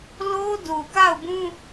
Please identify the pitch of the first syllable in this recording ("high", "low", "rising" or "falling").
high